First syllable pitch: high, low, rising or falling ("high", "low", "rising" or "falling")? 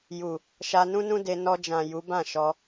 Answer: low